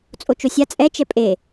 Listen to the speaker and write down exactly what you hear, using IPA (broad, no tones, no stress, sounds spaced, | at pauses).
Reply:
t͡sʼ o t͡ʃ o sʲ a t͡sʼ ɛ t͡ʃ ɛ pʼ e